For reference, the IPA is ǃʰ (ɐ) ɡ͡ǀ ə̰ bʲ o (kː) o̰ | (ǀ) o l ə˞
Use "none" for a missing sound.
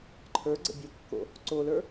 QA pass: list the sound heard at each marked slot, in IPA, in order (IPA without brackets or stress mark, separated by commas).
ə˞, kː, ǀ